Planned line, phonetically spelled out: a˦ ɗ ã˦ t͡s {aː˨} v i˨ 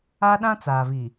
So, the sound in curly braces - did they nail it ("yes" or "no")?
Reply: yes